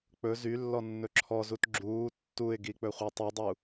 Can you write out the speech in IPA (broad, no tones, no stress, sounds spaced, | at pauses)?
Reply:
k͡p ɵ z y lː ɔ nː ɵ ǁʰ ɔ z u t ɡ͡ǁ uː tː u ɪ̯ ɡ i k͡p ɵ χʷ ɛ tˤ u dˤ u